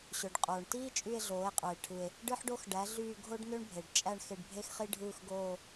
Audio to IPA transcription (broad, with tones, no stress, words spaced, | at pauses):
ɕø˩ɖqʼoː˩ɳtiː˥t͡ʃʼy˦˨e̯ ɮoː˩˥e̯qʼɯ˩e̯ ʈʰɯ˩e̯ | ɖɯ˥ħɖo˥x ɖæ˩˥ɮyː˦˨ ɡʱo˥ɖnø˥ɳbʱe˩ɖ t͡ʃʼæ˦˨ɳ xe˦˨ɖbʱe˥xχi˥ ɖʱɯː˦˨xɡoː˦˨